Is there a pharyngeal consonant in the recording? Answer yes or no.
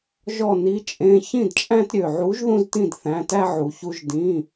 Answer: yes